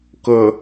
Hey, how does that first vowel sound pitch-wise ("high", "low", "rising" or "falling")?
low